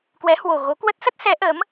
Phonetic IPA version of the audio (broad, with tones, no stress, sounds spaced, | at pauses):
k w ɛ˨˦ h w o˨˩ ɣ o˨˦ k w ə˦˥ t̚ s ə˦˥ t̚ s ɛ˨˦ ʔ ə˨˦ m